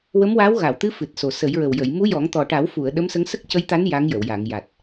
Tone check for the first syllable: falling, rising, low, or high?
rising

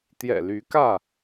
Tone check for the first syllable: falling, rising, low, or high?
low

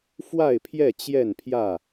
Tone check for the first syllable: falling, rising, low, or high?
falling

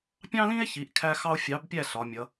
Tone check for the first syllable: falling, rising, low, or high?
high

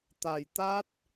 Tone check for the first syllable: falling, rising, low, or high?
low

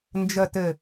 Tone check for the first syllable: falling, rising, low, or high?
low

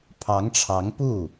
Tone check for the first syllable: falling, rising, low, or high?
rising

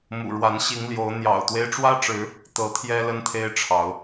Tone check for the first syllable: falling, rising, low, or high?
low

